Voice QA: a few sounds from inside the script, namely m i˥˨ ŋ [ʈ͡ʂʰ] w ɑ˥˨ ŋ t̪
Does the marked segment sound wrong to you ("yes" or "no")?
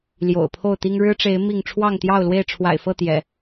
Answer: no